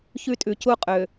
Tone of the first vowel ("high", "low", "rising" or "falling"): high